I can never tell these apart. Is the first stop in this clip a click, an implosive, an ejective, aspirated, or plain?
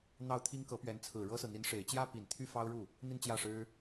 aspirated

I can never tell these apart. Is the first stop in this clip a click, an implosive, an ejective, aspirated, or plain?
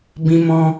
plain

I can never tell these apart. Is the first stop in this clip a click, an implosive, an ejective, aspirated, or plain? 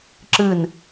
click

